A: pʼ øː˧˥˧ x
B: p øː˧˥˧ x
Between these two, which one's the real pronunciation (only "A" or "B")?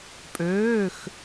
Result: A